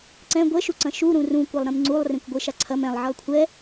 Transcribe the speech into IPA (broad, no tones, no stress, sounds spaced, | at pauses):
ǀ ɛ̃ ɡʷ ɛ ʃ u ǀ ɐ̃ ʃ u ɾ ũ r ũ kʷ ɐ lˠ ɾ ẽ m ŋ͡ǀ u lˠ r ẽ kʷ ɡʷ e ʃ a ǀʰ ɐ m ɛ̃ lˠ ʕ e lˠ kʷʰ ɛ